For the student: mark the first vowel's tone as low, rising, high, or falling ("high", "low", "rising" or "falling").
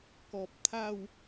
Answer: low